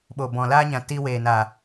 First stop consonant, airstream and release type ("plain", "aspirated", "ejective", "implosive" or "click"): implosive